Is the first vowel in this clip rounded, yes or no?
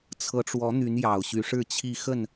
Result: no